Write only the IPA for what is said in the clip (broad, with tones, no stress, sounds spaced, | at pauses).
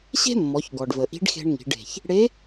ɕ e̤˥ mː ɔ˩˧ ç ɡ ɔ˩ ɖ v ə˩ ʔ i̤˧˥ ɖ x e̤˧ ɳ ŋ i̤˩˧ ɖ e̤˩ ç | ɽ e˧˥